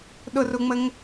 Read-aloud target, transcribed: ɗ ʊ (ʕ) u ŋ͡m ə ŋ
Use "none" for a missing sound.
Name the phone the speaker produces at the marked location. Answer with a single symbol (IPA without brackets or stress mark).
r